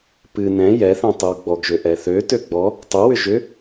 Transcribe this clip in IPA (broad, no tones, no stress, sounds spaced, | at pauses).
p ɨ n ɛ̃ j ɛ θ ɛ̃ tˤ ɨ w ɡ͡b ɔ ɡ ʒ ø ʔ ɛ θ ø t ø ɡ͡b ɔ | tˤ ø w ʏ ʒ ʏ